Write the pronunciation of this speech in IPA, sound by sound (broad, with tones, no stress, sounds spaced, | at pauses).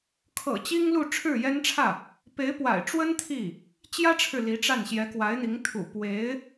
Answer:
kʰ ɤ̰˨˩ t͡ɕ i˥ ŋ l u˥˧ ʈ͡ʂʰ ɻ̩˥˩ j ɛ˥ n ʈ͡ʂʰ ä˥˩ | p e˧˥ ɪ̯ p w a̰˨˩ ɪ̯ ʈ͡ʂ w ə˥ n t̪ʰ i˥˩ | t͡ɕ j ä˥ ʈ͡ʂʰ ɻ̩˨ l i˧˥ ʈ͡ʂ a˥˩ n ɕ j ɛ˧˥ k w a˧˥ ɪ̯ n̪ i˧˥ ŋ t̪ʰ ṵ˨˩ p w e˧˥ ɪ̯